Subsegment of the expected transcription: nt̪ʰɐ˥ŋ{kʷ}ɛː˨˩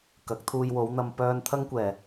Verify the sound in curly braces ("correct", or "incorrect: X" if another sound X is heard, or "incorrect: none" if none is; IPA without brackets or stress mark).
correct